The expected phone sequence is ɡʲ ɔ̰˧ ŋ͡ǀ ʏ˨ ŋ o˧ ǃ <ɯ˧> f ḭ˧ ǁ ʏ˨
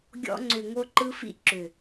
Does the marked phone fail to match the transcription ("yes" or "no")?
no